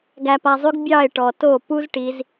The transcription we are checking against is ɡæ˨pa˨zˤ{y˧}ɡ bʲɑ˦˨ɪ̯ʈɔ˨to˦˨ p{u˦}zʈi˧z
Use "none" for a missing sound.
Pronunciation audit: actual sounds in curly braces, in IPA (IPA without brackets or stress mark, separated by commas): y˧, u˦